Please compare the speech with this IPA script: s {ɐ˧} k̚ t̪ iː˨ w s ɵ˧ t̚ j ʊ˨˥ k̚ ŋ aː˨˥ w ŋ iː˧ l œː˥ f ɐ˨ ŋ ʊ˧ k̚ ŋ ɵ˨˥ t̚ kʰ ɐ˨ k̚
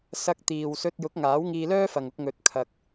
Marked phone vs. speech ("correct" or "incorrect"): correct